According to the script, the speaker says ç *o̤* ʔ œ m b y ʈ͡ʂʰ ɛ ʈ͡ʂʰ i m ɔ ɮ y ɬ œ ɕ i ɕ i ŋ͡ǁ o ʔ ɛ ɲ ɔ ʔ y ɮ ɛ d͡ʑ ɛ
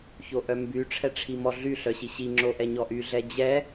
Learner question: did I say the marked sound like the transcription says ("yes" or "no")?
no